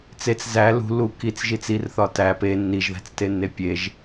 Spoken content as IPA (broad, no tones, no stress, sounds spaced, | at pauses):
t͡s e t͡s z æ l ṳ l u k i t͡s ʒ i t͡s i r θ ɒ t æ p e nː i ʒ ð æ̤ t͡s t e nː e pʲ e ʒ